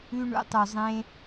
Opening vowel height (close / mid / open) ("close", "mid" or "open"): close